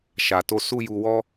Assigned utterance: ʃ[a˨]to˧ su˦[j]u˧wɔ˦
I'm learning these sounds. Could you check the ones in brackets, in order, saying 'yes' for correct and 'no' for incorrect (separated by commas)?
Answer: yes, yes